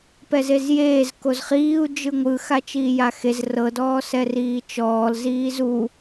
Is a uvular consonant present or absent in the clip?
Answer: present